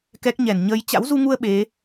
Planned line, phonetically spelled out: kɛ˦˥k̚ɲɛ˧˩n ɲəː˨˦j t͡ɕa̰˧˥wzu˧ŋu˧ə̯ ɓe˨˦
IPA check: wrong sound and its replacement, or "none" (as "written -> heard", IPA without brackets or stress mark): none